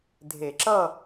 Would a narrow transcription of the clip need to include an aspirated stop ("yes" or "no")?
no